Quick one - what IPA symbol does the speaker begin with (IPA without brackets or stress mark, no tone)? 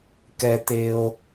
k